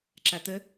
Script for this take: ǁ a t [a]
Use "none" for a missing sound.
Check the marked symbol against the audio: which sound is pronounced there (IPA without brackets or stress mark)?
ə